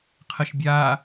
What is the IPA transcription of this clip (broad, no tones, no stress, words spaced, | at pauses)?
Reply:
qʰəʃbʲaː